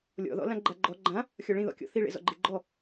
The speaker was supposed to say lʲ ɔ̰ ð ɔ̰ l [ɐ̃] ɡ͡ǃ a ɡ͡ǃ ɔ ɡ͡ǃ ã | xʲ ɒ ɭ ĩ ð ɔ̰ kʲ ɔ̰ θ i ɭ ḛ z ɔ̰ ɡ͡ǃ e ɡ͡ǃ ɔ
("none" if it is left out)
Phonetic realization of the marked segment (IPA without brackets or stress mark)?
ã